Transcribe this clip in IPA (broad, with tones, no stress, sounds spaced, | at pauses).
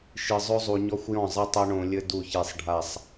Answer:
ʃ ɨ˨ zˤ o˦ zˤ u˨ ɲ ɔ˦ xʷ j ɔ̃˦˨ zˤ ɨ˦ tˤ o˦ ɳ õ˨ lʲ ɘ˦ d u˦˨ ç e˦˨ sˤ ɖʱ a˦˨ sˤ